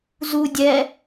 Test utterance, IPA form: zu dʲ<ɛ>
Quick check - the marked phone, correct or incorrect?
correct